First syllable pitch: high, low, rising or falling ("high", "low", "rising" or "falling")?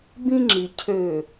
high